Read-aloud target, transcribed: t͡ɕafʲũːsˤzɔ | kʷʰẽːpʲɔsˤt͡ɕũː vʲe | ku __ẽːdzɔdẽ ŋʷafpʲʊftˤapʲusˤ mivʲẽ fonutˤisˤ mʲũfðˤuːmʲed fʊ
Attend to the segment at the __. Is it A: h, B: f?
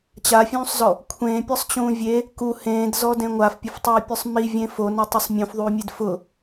A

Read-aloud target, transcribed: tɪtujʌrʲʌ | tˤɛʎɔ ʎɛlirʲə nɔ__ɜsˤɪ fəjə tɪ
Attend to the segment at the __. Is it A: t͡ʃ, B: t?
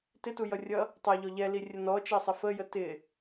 A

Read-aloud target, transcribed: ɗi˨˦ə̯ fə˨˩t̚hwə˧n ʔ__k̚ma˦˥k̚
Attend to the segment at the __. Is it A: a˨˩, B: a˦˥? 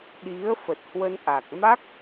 A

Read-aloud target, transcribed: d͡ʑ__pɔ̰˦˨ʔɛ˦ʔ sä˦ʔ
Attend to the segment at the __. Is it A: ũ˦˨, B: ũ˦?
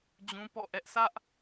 B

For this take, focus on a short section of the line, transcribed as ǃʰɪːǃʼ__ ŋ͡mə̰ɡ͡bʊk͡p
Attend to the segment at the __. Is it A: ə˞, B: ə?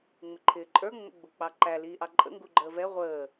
A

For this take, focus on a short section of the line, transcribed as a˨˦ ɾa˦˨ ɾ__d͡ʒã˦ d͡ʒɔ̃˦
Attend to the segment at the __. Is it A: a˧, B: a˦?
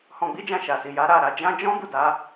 A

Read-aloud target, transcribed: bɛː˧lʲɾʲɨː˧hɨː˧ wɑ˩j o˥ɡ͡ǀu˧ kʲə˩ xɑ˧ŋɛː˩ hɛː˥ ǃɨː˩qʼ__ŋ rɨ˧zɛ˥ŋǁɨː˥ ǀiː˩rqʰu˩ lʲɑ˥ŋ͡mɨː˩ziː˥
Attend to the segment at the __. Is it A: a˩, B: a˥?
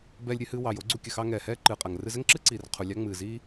A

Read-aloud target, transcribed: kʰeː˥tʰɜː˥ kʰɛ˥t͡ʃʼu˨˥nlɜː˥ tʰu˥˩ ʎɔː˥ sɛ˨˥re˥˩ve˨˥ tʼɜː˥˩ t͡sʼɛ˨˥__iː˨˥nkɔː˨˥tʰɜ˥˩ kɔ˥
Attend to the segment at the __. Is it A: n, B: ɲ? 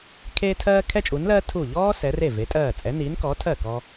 A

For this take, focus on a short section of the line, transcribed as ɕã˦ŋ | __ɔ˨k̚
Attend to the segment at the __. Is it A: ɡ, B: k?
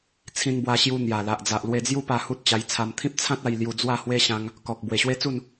B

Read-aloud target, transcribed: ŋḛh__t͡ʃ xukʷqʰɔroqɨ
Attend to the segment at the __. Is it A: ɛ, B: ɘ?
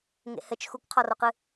B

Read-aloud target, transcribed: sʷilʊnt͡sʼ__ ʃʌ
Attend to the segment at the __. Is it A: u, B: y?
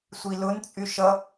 B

